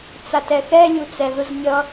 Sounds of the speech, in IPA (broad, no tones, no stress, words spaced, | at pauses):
t͡satɛxɛ lʲut͡sɛðɯznʲʌ